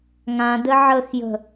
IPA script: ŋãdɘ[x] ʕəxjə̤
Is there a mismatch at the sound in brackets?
yes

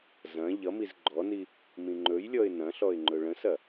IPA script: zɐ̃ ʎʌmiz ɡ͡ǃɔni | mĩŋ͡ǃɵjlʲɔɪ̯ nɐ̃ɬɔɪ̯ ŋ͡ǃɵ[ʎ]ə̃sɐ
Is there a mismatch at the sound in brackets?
yes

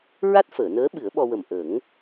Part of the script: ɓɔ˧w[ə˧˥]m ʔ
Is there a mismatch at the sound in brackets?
yes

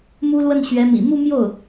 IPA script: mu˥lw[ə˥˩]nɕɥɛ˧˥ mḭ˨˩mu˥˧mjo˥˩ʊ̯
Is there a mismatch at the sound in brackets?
no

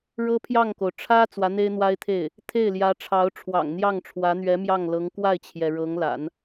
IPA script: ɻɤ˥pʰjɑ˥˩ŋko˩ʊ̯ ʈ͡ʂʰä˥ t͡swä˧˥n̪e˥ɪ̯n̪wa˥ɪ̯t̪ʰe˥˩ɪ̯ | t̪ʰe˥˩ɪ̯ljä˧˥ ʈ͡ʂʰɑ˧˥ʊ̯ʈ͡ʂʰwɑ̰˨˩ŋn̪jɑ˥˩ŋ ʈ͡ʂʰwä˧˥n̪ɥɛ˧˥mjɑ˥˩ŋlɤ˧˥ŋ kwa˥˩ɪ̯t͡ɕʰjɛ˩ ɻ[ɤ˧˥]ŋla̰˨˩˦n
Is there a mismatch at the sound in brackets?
no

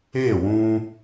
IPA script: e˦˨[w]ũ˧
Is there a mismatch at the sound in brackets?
no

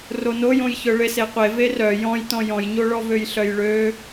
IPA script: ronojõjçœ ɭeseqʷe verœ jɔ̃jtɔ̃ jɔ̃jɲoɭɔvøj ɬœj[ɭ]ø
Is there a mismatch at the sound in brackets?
no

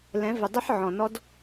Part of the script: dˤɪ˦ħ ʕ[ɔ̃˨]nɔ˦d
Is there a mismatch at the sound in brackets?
no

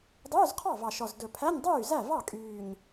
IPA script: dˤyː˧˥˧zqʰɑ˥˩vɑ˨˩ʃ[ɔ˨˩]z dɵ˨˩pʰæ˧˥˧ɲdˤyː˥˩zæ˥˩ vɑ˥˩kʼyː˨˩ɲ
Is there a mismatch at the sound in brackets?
no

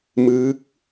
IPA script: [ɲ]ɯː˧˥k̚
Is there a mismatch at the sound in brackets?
yes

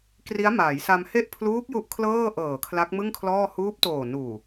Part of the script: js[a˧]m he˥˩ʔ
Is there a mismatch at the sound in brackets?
no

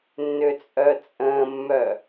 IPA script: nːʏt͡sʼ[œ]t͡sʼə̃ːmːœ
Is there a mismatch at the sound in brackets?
no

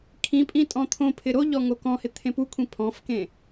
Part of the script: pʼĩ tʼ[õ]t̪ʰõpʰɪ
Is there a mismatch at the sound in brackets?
yes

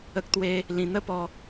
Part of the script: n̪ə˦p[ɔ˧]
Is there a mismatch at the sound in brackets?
no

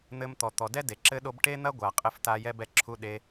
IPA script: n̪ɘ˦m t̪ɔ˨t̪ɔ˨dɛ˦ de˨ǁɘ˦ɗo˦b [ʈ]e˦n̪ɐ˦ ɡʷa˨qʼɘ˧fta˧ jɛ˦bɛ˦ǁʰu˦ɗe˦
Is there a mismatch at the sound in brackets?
no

